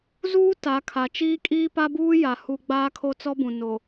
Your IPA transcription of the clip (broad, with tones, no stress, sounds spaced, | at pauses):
z uː˦ t a˨˦ kʰ a˨ t͡ʃ iː˦ kʼ iː˦ p a˦ b uː˦ j a˨ h u˦ ɡ͡b aː˦ kʰ o˦ t͡s ɔ˦ b ũ˨ n o˨